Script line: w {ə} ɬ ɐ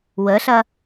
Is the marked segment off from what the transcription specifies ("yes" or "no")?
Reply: no